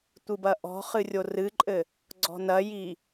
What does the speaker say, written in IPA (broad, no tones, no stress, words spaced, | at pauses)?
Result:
tʷɨbɐʔɔ̤χɨ rʲorɨǃʼɘ | ɡ͡ǀɔ̤nɐji